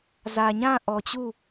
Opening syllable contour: low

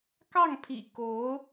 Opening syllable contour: falling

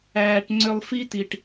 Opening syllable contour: high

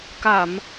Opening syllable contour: low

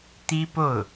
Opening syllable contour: high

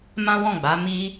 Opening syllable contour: high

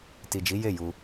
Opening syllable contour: low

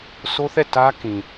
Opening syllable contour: high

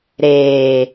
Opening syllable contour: low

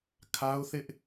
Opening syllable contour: high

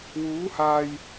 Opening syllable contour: rising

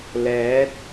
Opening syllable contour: rising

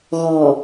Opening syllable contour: low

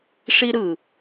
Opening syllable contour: high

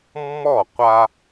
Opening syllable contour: falling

